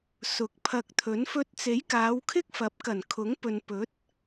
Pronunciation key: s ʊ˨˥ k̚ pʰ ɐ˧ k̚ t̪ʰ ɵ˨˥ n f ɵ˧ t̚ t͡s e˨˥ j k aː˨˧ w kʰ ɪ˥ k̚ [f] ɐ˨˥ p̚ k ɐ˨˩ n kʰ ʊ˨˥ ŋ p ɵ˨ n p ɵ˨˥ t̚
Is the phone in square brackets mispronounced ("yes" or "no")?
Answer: no